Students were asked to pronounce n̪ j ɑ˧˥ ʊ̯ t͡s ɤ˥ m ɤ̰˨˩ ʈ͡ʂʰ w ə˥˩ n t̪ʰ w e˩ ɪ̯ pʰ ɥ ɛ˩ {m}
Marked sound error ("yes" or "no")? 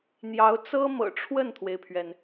yes